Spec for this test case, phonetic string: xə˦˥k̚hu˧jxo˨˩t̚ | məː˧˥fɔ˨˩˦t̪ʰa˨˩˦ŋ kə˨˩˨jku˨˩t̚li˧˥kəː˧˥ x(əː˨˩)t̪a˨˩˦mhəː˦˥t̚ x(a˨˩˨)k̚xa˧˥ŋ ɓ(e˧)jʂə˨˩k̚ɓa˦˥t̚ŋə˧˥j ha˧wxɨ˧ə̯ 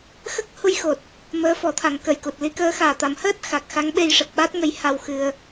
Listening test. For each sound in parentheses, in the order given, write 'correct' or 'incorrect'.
incorrect: aː˨˩, incorrect: a˨˩, correct

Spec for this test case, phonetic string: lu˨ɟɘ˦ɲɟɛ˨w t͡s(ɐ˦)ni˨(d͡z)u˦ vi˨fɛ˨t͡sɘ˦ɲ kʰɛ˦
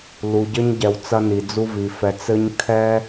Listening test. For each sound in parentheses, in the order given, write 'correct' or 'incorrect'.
correct, correct

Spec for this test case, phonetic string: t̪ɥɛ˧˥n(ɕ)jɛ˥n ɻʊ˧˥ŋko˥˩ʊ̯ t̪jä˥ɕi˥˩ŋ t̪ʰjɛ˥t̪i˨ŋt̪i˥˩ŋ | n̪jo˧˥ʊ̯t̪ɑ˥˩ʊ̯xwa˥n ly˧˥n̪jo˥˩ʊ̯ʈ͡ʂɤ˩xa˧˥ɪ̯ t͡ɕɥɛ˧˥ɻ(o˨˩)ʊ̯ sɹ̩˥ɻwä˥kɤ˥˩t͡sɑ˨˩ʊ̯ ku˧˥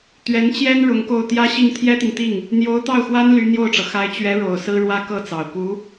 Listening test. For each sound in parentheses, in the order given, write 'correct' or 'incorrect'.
incorrect: t͡ɕ, correct

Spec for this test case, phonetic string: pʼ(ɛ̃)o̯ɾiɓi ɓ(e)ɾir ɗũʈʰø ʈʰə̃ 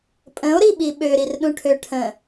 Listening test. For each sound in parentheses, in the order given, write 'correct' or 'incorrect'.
incorrect: ə̃, incorrect: ø

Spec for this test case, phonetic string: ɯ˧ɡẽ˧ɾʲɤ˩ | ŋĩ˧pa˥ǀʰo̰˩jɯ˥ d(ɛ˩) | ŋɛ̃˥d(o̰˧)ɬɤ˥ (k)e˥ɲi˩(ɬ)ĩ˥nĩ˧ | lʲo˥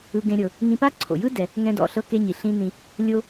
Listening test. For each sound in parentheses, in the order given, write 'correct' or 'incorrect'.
correct, incorrect: ɔ̰˧, correct, correct

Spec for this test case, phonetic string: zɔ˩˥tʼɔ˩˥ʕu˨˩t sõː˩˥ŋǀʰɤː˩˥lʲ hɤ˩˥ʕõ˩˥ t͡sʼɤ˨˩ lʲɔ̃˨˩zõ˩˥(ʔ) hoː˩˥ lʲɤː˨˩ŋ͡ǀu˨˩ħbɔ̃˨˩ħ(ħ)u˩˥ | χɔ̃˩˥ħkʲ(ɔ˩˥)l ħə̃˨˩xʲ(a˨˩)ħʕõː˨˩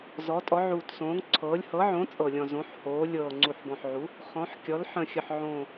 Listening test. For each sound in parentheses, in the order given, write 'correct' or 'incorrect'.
incorrect: ħ, incorrect: ʕ, correct, incorrect: ə˨˩

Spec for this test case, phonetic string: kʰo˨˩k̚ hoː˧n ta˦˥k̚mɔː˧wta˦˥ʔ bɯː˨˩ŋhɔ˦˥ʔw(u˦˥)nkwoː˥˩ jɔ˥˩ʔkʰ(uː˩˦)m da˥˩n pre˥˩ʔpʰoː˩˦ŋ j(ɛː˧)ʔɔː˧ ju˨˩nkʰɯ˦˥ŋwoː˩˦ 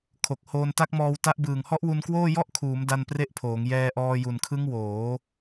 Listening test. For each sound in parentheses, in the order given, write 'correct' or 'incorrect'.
incorrect: u˧, correct, correct

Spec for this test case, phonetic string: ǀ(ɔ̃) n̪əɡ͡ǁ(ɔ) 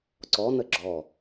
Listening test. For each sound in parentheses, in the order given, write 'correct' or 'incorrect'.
incorrect: ɔ, correct

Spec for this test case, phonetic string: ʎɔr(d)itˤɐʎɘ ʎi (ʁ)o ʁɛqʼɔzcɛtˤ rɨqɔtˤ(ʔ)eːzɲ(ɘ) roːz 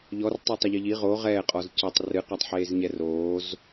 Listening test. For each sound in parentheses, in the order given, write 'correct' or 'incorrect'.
incorrect: tˤ, correct, incorrect: ħ, incorrect: ɛ

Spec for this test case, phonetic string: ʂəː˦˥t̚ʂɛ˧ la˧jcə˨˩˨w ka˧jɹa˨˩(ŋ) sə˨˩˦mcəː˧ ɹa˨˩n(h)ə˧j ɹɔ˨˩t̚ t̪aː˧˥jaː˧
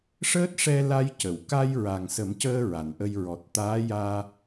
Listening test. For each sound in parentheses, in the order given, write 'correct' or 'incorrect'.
correct, incorrect: ʔ

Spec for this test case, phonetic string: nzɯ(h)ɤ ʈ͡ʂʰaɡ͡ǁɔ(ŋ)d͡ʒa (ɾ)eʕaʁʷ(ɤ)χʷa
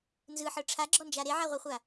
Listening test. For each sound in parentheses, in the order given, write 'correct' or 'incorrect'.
incorrect: ħ, incorrect: n, correct, correct

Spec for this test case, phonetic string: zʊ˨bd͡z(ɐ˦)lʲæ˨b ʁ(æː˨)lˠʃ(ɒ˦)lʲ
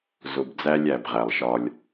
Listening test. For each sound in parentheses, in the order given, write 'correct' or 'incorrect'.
incorrect: æ˦, incorrect: æ˨, correct

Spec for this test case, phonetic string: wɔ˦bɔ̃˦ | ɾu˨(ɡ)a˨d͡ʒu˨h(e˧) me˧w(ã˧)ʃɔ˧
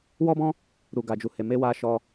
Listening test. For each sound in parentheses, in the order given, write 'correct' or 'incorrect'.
correct, incorrect: e˨, incorrect: a˧

